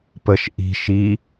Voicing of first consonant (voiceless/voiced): voiceless